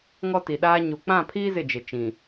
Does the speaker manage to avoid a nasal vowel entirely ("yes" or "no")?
no